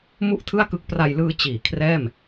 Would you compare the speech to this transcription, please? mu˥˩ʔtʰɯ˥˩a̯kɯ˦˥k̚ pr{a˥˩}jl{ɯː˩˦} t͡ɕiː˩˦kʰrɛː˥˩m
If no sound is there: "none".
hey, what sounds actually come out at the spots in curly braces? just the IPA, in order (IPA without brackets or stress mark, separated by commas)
a˧, ɯː˧